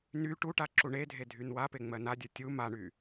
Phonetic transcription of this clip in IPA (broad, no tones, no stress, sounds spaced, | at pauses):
n y ʈ u ʈ a ǁ u ɳ e dʱ e dʱ y n w a p e ŋ͡m ɜ n a dʲ ə˞ tʲ u m a ɳ y